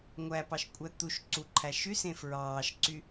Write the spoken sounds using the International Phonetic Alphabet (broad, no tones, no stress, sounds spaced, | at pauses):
ŋʷ æ p ɑ ʃ kʷʼ æ t̪ u ʃ ǀ u ǃʰ æ ʃ y s ẽ f ɹ ɑː ʃ ǀ y